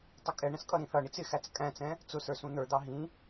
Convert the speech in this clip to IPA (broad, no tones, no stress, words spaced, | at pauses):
tˤʊkʼɛɳə̃s kʼʌɾĩθʌɳit͡s ɪxæt͡s kʼæ̃t͡sɛ̃ | t͡sʊsə˞ sũn̪ə˞d̪ɑ ɦĩ